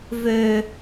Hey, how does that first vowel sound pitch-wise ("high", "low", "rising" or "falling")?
low